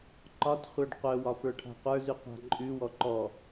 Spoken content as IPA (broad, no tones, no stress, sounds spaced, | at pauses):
ǃ ɒ t χʷ ə˞ ɖ qʷ œ w ɒ f ə˞ ʈʰ a̤ qʷ ə˞ z ʉ qʷ a̤ ǃʼ ʉ w ɔ ǃ ɔ